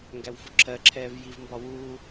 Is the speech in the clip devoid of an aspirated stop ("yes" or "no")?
no